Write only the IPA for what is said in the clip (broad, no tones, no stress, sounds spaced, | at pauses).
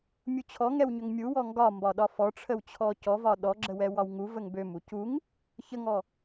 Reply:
mʲ u t͡ɕʰ ɔ ŋ ɛ w ɲ ø ŋ mʲ u w ɔ ŋ ɡ ɒ m b ɒ ɗ ɒ f ɔ ʈ͡ʂʰ ə w t͡ɕʰ ɔ c ɔ v ɒ ɗ ɔ ɡ͡ǁ ə w ɛ w ɒ w ŋ u v ə ŋ b ø m u c u ŋ | ç ə ŋ ɔ